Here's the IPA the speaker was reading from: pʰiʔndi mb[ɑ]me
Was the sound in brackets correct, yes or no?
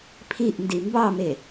yes